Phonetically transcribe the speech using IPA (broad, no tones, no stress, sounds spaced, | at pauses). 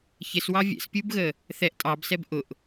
ç ɪ s w ɑ vʲ ɛ̰ s pʲ u b ɣ ə | θ ɛ ʔ tʼ ɑ b s ɛ b ʔ ʊ ʔ